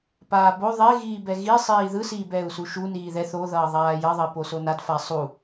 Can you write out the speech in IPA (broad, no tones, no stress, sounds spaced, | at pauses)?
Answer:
p aː b o ðˤ e ɣ iː b ɛ ɣ i sˤ iː ð ɯ s iː b ɛː u̯ s u ʃ u n iː ð ɛ θ o ð ʌː ðˤ aː j ʌ ðˤ ʌ i̯ p o s o n a d f a sˤ u